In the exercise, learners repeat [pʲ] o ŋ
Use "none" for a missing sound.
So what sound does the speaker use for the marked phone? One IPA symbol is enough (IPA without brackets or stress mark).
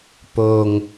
p